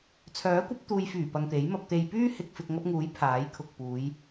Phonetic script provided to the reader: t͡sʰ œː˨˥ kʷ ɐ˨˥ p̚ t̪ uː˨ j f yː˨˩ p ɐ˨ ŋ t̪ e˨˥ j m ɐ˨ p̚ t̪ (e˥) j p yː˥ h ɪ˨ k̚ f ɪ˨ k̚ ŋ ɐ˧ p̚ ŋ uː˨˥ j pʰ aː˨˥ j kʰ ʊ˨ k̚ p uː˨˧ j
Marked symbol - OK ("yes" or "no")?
no